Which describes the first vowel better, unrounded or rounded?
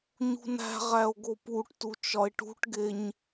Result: rounded